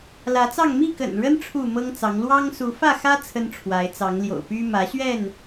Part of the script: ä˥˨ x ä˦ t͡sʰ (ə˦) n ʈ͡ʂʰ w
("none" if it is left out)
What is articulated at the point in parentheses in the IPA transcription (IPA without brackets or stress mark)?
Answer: ə˦